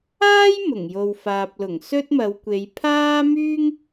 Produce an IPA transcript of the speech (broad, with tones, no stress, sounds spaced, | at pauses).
aː˥ j m ʊ˨˩ ŋ j o˨ w f aː˨ p̚ l ʊ˨˩ ŋ s ɵ˥ t̚ m ɐ˨˧ w kʷ e˨˧ j pʰ aː˥ m yː˥ ŋ